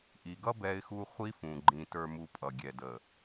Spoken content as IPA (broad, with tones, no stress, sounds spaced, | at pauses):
ʔ i˨ ɡ ʌ˦ b ɛ˦ ɪ̯ x u˦ χʷ i˦ f ũ˨ ɡ͡ǃ ĩ˨ t ə˞˨ m u˨ pʼ ʌ˨ ɡʲ ɛ˨ d ə˨